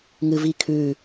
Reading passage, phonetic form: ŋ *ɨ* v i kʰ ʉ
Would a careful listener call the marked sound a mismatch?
no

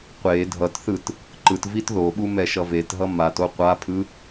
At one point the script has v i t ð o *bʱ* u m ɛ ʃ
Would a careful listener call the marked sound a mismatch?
yes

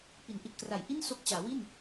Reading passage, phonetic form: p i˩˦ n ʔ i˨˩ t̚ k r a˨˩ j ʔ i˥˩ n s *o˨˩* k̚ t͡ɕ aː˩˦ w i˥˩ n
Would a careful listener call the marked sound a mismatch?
yes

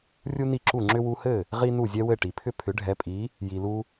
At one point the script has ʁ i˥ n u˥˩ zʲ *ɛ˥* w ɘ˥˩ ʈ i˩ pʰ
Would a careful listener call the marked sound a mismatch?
no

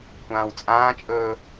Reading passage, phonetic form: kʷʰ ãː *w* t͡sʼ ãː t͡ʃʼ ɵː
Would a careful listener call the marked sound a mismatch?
no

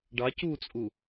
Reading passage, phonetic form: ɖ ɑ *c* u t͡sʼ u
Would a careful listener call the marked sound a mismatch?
no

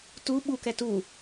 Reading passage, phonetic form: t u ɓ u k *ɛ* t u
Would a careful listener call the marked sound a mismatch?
no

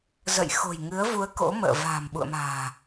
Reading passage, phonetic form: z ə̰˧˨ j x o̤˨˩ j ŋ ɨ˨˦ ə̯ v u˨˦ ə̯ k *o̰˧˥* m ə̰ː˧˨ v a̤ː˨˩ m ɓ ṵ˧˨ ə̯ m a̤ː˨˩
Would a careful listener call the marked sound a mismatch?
no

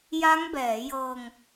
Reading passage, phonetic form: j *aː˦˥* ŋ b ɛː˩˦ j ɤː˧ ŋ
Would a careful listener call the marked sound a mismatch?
yes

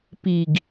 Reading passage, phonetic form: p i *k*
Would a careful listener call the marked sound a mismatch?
yes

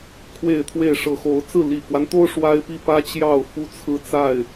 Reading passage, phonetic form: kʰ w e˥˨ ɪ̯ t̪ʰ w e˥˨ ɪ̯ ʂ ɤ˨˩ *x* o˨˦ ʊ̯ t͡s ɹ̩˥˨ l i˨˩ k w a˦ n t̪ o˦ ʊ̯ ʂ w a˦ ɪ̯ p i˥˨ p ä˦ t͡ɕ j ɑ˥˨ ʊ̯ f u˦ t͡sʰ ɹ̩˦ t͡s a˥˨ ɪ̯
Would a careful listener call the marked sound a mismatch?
no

